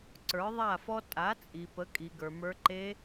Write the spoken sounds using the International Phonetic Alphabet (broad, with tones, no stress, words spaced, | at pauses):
ǀə˞˨˦ðˤa˦˨fɔ˦ tʼa˨˦t͡sʼi˨ pə˨˦kʼi˨ɡə˞˨mə˞˧ ǃe˧